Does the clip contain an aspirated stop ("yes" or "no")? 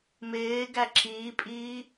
no